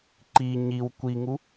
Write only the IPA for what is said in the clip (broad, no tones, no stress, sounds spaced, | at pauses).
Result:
ǃ i ɲ i w kʷ i ŋ u